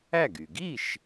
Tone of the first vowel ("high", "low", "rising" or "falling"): falling